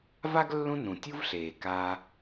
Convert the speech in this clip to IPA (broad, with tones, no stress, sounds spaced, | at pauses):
v a˥ ɡ lː ũ˦ n ũ˩ tʲ u˦ v ɬ eː˩ k a˨